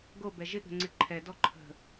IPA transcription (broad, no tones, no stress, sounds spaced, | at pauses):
ɡ o b ɛ ʒ ɪ ɠ ə̤ ŋ͡ǀ ɪ ǃʰ ɛ d ɔ ǃʰ ə̤